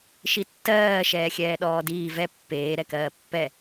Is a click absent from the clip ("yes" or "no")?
yes